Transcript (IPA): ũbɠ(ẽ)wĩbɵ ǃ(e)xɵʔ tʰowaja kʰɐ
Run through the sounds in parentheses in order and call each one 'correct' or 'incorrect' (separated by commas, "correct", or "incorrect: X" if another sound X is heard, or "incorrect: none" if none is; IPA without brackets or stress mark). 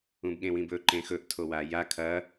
correct, incorrect: ẽ